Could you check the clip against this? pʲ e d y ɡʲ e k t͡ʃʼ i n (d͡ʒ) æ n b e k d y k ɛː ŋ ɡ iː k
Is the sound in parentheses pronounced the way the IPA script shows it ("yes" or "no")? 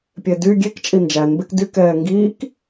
yes